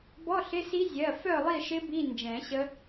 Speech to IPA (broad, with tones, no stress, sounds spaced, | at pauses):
b ɔ˧˥˧ ɬ ɪ˧˥˧ s i˦˥ zʲ ɜ˩˧˩ f œ˥˨ lˠ i˥˨ ʃ ɪ˦˥ b i˧˥˧ n d͡ʒ ɛ̃˨˩˦ ɕ ə˦˥